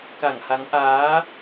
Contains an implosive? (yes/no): no